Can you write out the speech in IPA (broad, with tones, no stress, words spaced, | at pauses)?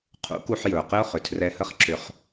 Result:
qʰṵ˨˦ku˧ħjɵ˨ʊ̯ qɘ˦ʊ̯χʏ˨ tʰrɛ˧hə˦χǁʏ˧χ